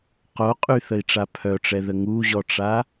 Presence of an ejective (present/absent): present